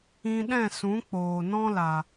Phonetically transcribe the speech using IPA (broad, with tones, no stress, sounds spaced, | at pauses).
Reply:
ĩ˧ ɗ ɛ̃˦˨ s ũ˨˦ k͡p oː˨ n ɔ̃˦ l a˨